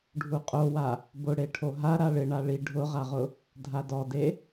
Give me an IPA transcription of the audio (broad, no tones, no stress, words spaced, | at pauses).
ɖʱuqʼowa | bʊɽeʈʰo ɦa ɾaɭɪ ɳaɭi ɖʱʊʁaʁʊ | dʱadɔde